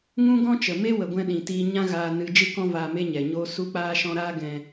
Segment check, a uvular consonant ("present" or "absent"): absent